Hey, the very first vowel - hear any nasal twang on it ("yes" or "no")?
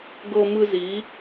no